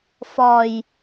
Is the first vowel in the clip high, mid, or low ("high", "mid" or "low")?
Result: low